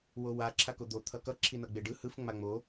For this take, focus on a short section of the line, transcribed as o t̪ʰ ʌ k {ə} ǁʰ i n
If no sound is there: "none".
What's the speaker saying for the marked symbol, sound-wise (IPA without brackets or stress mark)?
ʌ